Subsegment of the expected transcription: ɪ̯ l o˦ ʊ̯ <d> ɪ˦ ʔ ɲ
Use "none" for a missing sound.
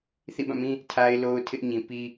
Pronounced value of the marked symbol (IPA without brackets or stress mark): tʰ